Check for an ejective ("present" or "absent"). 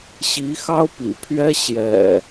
absent